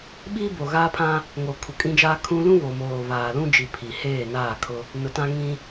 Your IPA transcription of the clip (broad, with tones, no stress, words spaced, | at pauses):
ɓiː˦bo˨ɣaː˦pʰã˦ | ŋo˨kʰu˨kʼĩ˦d͡ʒaː˦ kʰũ˦ lũ˦ βo˨moː˨βaː˨ lũ˦d͡ʒi˨ pʰi˨ heː˦˨naː˦˨kʰʊ˦ | nʊ˨tã˦ ŋĩ˦